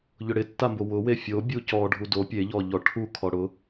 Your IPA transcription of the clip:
ʎ ʊ ɽ ɪ tː a m b o w ʊ w e fʲ o bʲ u c ɔ ɖʱ u d o pʲ e ʎ ɔ ʎ ɔ ʈʰ u kʰ ɔ ɽ ʊ

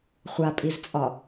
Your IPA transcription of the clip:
χʷ a pʼ i z t͡sʼ ɒ

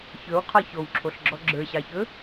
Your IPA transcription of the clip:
ç ɵ w qʰ ɒ ç o w ǁʰ o ɬ ɡ͡ǁ ɔ ɡ͡ǁ ə˞ ɕ ɑ ç ɵ

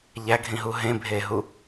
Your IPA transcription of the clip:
ʎ æ ɡʱ ĩ ɦ u ɦ ẽ bʱ eː ɦ u

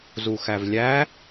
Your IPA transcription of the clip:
z u x æ v lʲ æ

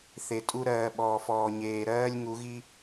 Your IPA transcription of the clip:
θ e˨ tʼ u˦ ɾ ɜː˨ ɓ ɔː˨ f ɔː˨ ɲ eː˨ ɾ ɜː˦ lʲ ŋ u˨˦ ɣ i˦

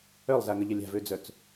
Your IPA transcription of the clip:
œ lˠ z a ŋ ə ʎ ə lʲ a̤ v ø d͡z œ t͡s

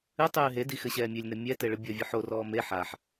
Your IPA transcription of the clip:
ɨ tˤ ɨː ɦ e d i x ɘ ɕ ɛː mʲ e lʲ n ɘ mʲ ɛ t e ɭ ɨ bʲ ɔ vʲ ɨ ħ o r ɔː m e ħ a ħ

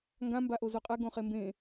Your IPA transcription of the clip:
ŋ ɡ ã m b a ʔ o z o qʼ ɛ ɡ õ χ e m b ẽ

